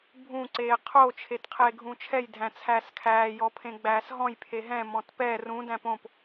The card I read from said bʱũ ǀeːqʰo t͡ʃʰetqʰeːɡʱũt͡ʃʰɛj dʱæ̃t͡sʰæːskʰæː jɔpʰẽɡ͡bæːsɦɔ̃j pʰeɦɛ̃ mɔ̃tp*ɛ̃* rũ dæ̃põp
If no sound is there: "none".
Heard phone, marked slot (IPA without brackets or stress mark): ɛ